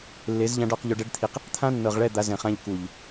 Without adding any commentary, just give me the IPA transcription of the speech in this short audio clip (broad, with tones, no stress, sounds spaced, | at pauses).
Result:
lː e˨˦ z ʎ ã˧ ɖ ɔ˦˨ q ʎ o˧ ɖ ɛ˦ ɖ t̪ʰ i˧ q | t̪ʰ ã˦ nː ɤ˨ ʁ ɭ ɛ˦˨ d̪ a˦ z ɛ̃˧ χ ã˦ ʎ k u˨ ʎ